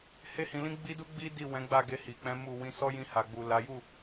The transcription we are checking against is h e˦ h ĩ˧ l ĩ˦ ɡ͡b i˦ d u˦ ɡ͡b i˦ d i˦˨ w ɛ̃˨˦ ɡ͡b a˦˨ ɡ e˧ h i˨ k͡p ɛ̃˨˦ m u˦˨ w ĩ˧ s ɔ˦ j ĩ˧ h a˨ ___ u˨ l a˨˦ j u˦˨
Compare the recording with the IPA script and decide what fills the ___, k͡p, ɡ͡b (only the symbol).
ɡ͡b